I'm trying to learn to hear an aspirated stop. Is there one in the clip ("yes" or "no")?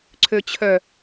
yes